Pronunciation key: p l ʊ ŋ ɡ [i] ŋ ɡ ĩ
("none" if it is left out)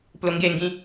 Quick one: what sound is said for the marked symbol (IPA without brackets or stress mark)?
e